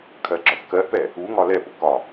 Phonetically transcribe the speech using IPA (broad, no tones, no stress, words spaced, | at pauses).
kʰɜɡ͡ǁɒθkɜʔpɛ | uŋɒ lɛpʊ kɒ